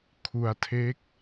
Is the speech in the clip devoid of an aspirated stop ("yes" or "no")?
no